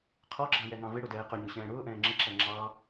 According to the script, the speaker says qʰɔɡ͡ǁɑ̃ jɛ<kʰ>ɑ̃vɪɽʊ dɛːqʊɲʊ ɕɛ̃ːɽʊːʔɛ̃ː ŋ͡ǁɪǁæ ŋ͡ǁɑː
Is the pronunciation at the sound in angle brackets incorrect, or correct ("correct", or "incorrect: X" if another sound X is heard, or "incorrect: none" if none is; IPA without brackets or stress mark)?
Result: incorrect: ŋ